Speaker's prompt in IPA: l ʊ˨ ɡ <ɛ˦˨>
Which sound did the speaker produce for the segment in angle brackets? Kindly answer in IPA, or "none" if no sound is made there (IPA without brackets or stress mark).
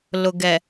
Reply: ɛ˨